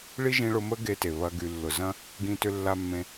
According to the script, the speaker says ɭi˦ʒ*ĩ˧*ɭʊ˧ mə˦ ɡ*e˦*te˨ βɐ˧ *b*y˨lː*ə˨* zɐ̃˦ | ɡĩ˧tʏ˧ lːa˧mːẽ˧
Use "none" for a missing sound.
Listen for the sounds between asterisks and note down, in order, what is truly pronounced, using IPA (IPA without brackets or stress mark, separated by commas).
ĩ˧, e˧, ɡ, ʊ˨